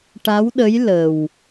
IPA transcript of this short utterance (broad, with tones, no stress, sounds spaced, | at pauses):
ʈ a˧˥ w ɗ ə˧˥ j l ə˨˩ w